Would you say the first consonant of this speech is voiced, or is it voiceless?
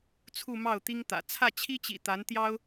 voiceless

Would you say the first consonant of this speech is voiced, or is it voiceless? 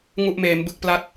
voiced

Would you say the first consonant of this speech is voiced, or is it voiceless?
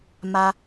voiced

